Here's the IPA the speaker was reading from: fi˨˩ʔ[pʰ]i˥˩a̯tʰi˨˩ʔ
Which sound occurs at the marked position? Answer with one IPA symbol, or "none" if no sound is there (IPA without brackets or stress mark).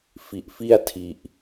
f